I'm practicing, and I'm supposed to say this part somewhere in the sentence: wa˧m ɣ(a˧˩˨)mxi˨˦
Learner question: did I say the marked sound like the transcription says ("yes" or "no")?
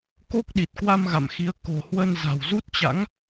no